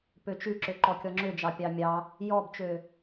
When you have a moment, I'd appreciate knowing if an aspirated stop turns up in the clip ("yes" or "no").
no